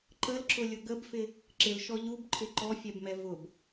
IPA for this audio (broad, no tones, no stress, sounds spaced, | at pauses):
ǃ ə l ǁ ʊ lʲ ʊ ɡ ə b f ɪ | ǁ ɪ l ʃ ɔ ʎ u b ǃʰ ɪ ǃ ɔ fʲ ɛ b m ɛ v ʊ b